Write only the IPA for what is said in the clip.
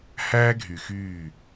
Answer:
hæː˦ɡʱy˨xyː˦˨

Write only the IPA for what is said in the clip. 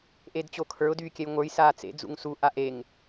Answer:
ʔedt͡ɕokʰə˞ʊ̯ dyːkʲɛjŋʷə˞j saːt͡sḛ d͡zṵŋsu ʔaʔeŋ

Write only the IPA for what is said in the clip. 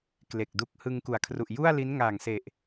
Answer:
kle˨˩k̚du˦˥k̚ hɯ˧ŋku˨˩a̯kʰru˨˩ʔ ju˥˩a̯li˦˥n ŋaː˨˩ŋse˨˩ʔ

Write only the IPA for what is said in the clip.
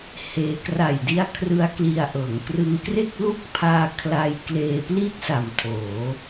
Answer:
heː˧ kra˨˩jdi˧a̯ kʰrɯ˦˥a̯kli˧a̯ ʔɤː˩˦ŋkrɯ˧ŋkre˥˩k̚ lu˦˥k̚pʰaː˧ kʰla˧jkleː˧pli˥˩t̚sa˨˩m tʰoː˩˦

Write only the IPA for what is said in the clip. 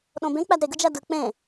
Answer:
ɗõbẽ k͡pædɾeɡɯ d͡ʒædɯ k͡pẽ

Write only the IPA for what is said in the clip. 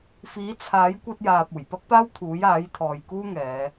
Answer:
fiː˨˥t͡sʰaː˨˥j kʷɐ˧t̚jaː˨p̚ uː˨˩jpɐ˥k̚paː˥wt̪ʰuː˨˥j aː˨˥jt̪ʰɔː˨jkuː˥ ŋɛː˨˧

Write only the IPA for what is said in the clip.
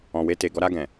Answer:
ɔ̃˨we˧te˨ɡɔ˧ ɾa˧ɡɛ̃˨

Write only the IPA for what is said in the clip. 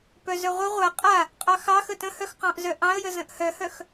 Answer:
pœzœʁʷə ʁʷa qʼa | qʼɑxɑxə tə̃hœx qɑ̃ʔzœʔɑ̃ə̯jə zə̃ʔhœhœx

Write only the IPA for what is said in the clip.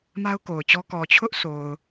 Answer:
ma˦ʊ̯ko˨ʊ̯t͡ɕɔ˦ kɔ˨t͡ɕʰʊ˦ʔso˨ʊ̯

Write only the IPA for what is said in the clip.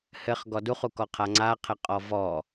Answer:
hɘχ ɡɔduχu kɔqʰaŋ͡ǀaqʰɘ qʼɔvɔ

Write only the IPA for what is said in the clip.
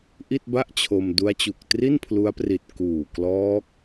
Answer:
ʔi˥˩t̚ba˥˩ʔt͡ɕʰo˧m du˦˥a̯t͡ɕu˨˩k̚ tri˥˩npʰlu˦˥a̯pri˨˩t̚ kuː˨˩klɔː˦˥k̚

